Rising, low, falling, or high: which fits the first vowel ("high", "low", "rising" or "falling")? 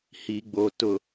low